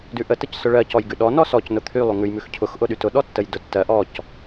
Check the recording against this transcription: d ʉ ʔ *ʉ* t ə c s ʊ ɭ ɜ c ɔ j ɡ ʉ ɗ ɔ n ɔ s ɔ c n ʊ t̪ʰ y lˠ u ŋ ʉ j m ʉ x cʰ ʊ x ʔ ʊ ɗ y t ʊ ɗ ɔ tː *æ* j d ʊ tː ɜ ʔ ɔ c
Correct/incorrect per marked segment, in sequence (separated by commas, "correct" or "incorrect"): incorrect, incorrect